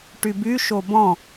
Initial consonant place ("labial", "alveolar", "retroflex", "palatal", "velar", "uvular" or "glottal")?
retroflex